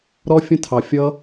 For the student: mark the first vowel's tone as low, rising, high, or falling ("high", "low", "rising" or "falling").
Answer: high